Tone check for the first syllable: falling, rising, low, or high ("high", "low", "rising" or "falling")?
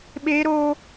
high